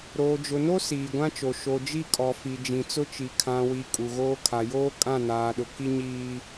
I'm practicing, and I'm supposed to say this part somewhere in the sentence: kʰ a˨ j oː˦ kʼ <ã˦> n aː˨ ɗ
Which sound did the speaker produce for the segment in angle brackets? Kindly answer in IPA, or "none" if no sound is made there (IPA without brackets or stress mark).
ã˦˨